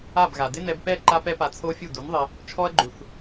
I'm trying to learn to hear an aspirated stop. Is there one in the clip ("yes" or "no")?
yes